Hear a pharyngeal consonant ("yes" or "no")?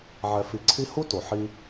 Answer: yes